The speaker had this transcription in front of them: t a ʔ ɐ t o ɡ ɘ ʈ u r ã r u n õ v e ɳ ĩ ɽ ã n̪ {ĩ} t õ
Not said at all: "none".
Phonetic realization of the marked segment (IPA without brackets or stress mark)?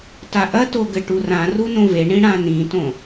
ĩ